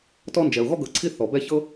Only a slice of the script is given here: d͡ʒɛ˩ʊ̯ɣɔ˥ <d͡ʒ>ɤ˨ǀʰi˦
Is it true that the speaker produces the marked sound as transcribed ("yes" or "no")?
no